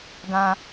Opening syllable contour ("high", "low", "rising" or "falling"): high